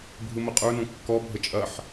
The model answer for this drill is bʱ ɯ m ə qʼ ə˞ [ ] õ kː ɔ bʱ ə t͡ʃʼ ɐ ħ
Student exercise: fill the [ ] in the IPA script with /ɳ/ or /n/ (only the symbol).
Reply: n